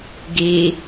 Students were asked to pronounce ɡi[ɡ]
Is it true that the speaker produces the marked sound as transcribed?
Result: no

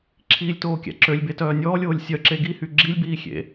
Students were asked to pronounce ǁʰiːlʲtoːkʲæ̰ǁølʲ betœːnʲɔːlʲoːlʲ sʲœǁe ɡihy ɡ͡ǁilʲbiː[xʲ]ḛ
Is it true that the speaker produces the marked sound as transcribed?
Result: yes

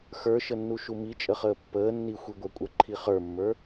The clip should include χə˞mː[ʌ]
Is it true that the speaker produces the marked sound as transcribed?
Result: no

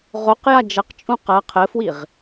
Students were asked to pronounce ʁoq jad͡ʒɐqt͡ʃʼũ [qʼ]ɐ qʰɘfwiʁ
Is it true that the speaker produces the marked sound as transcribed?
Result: no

